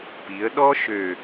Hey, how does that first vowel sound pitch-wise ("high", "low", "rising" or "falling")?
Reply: rising